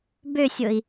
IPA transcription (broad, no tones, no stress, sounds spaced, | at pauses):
b ø sʲ o i̯